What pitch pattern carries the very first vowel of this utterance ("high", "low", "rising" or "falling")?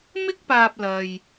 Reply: high